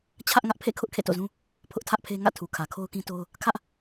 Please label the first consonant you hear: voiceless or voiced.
voiceless